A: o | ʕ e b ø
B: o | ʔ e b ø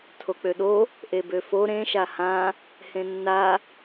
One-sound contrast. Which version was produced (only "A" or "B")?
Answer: B